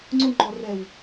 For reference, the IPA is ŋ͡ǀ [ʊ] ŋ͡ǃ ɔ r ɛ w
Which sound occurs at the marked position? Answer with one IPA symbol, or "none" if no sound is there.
ʊ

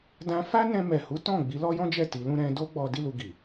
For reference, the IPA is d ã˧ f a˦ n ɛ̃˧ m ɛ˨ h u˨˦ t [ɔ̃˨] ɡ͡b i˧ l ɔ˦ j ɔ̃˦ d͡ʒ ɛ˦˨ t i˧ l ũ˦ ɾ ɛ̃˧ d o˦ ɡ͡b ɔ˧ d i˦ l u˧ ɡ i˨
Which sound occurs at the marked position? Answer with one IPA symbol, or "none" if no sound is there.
ɔ̃˦˨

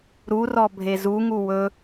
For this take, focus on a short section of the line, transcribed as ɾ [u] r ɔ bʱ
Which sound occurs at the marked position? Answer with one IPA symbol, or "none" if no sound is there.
u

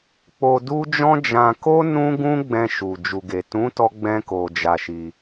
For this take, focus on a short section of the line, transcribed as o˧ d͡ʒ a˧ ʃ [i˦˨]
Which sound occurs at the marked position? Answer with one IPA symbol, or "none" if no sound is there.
i˧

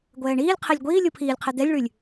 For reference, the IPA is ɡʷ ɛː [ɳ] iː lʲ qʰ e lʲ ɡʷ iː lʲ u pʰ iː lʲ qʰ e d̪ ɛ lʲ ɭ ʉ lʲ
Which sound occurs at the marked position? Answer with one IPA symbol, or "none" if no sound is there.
ɳ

